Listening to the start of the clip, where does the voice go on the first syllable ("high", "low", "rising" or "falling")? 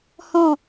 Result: falling